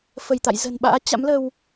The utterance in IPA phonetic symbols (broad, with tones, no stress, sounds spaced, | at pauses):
f ə˧˩ j t̪ a̰˧˨ j z ə̤˨˩ n ɓ a̰ː˧˥ t͡ɕ a̰˧˥ m l ə˧ w